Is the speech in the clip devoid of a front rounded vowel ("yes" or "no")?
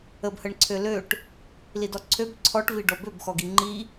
no